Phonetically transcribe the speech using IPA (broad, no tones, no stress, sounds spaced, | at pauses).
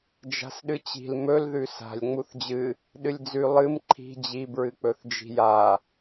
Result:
d͡ʒ a̤ s ɗ ɨ t͡ɕ i̤ l m ɵ l ð ʉ s a̤ lʲ ŋ͡m u θ d͡ʑ ɨ | ɗ ɨ lʲ d͡z ʉ lˠ ɨ m ǃʰ i̤ d͡ʑ i b ɹ ɨ k͡p ɵ θ d͡ʒ i̤ j a